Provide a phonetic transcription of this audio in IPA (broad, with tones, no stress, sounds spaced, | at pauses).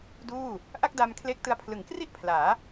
d uː˥˩ | ʔ a˥˩ k̚ d a˧ m kʰ l e˦˥ k̚ t ɯ˧ a̯ pʰ l ɯ˩˦ ŋ k r i˥˩ ʔ pʰ l aː˩˦